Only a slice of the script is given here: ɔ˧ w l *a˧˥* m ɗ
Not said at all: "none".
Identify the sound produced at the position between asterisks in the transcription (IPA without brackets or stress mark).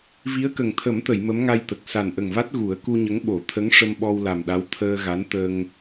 a˨˩